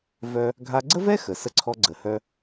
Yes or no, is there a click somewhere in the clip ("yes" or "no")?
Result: yes